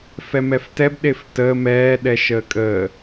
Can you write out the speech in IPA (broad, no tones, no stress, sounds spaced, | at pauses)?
f ɛ m ɛ f t ɛ b ɗ e f t əː m ɛː ɗ ɛ ʃ əː kʼ əː